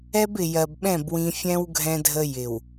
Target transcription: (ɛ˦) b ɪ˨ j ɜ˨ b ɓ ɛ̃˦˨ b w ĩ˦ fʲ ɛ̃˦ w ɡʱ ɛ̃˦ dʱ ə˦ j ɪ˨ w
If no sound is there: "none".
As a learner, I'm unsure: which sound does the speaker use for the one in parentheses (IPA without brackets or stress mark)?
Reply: ɛ˦